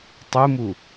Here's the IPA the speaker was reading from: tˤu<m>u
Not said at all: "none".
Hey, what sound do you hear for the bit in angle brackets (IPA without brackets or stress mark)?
m